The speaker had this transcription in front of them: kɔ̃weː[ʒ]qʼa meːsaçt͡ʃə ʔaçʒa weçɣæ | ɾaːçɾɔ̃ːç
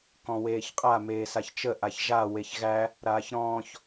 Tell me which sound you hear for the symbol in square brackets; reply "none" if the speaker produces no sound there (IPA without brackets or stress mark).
ç